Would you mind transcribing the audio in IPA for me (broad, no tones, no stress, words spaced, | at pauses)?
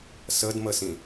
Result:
sədməsĩ